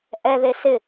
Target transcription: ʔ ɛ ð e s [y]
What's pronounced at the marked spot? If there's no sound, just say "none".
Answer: ɪ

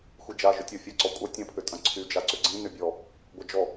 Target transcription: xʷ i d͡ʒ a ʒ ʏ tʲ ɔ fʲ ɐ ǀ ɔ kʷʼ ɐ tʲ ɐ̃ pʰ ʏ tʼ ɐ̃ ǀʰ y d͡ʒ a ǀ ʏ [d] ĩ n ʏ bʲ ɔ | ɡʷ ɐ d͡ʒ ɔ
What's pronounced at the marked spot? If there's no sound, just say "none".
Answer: ɡ͡ǀ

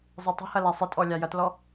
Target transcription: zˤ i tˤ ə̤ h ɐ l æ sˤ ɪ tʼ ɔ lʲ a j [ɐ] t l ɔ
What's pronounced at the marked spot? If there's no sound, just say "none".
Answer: ɐ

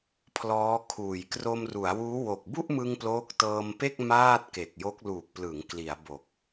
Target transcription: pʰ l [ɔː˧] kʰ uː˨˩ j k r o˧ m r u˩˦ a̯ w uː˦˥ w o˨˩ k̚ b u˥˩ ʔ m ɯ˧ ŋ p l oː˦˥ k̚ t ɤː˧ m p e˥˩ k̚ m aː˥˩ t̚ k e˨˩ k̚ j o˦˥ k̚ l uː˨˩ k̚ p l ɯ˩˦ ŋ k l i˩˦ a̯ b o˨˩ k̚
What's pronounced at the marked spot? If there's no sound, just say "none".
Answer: ɔː˦˥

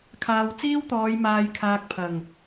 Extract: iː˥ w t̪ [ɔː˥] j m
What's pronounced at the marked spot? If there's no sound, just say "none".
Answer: ɔː˨˧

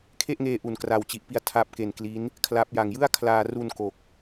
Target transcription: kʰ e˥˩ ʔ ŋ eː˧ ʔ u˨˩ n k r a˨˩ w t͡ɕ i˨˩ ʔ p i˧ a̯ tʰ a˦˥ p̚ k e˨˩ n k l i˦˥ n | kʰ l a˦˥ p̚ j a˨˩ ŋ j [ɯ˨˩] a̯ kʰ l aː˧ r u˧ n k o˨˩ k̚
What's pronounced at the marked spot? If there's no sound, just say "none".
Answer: ɯ˥˩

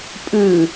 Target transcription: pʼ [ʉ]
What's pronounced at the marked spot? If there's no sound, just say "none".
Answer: ʉ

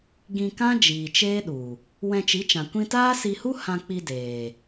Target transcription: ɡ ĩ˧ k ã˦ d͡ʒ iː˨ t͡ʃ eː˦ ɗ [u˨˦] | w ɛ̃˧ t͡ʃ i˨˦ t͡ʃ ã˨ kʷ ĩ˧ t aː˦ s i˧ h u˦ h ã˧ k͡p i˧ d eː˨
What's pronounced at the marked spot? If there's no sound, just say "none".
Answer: u˨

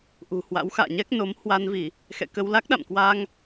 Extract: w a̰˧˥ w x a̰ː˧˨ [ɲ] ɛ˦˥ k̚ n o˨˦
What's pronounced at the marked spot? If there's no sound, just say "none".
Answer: ɲ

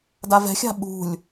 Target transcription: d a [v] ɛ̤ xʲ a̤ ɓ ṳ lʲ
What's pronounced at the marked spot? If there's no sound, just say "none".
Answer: v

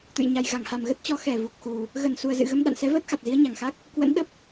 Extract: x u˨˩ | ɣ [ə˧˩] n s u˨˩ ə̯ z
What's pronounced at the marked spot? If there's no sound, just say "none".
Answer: ə˧˩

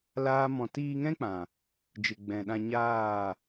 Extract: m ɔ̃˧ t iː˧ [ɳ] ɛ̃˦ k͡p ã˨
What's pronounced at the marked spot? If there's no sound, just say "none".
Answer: ŋ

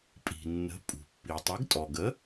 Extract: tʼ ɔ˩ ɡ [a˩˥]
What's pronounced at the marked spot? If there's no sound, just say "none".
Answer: ə˩˥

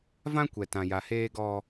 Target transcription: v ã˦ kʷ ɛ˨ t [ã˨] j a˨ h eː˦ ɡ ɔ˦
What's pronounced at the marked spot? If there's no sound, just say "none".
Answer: ã˨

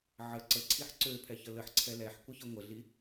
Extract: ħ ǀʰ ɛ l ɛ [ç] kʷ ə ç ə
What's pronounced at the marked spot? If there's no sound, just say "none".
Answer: ħ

